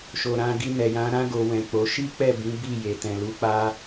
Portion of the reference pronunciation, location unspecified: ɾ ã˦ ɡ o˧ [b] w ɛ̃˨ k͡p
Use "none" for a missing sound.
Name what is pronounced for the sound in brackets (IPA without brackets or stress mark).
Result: none